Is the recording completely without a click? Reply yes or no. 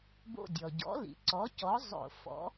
no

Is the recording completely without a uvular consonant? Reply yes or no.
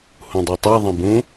yes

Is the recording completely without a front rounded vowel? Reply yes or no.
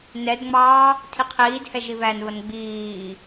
yes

